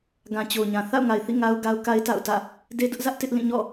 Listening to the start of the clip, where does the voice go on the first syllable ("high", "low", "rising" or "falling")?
low